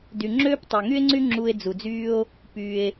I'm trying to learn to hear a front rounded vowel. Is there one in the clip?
yes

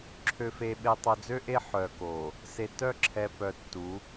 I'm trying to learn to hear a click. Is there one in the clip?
yes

